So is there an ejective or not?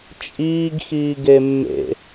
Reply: yes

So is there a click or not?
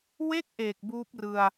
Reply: no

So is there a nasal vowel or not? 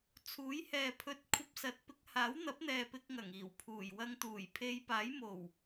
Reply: no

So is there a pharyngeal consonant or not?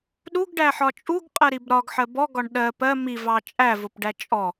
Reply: yes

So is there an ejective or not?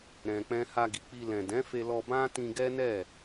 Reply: no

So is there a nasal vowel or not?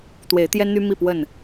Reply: no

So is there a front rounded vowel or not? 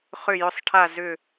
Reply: yes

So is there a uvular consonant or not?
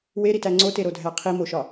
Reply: yes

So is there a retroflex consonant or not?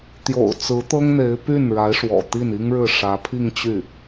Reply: yes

